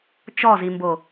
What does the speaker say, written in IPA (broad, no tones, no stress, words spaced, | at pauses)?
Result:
t͡ʃɔzimbo